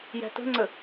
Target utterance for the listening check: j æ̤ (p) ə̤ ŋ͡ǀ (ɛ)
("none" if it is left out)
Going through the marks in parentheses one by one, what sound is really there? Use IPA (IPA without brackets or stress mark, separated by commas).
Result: t, ə